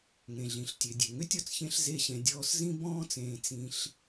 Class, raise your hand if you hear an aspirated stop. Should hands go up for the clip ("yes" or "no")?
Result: no